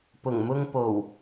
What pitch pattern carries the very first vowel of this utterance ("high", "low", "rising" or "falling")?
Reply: low